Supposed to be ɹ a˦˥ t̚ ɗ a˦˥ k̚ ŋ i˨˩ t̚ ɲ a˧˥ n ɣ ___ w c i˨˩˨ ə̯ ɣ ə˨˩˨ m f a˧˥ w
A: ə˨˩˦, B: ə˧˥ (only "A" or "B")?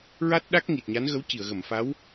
B